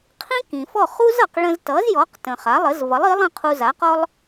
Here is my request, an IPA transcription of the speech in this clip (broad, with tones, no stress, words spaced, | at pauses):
qʰĩ˥kĩ˩fɔ˥˩χu˥z ʌ˩q ɭə̃˧ztʌ˩˥zjɔ˩˥qtə̃˩ χa˩˥lˠə˩˥z vʌ˩˥lˠi˩˥lˠə̃˥˩ qʰu˧za˩˥qɔ˥lˠ